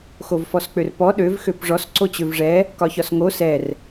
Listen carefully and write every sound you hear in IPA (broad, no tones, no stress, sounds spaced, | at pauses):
x o v f ɔ s k͡p ø r p ɔ ɗ ø v x ø p ʐ ɔ s ǀ o t͡ɕ ø v ʐ ɛ | k ɒ ç ɒ s ŋ o s ɛ r